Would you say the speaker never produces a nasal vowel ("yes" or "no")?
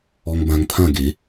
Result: no